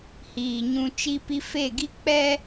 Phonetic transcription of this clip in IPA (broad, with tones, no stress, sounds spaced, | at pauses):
h iː˨ ɲ ũ˦ t͡ʃ i˦ p i˦ f e˦˨ ɡ i˦ k͡p ɛ˦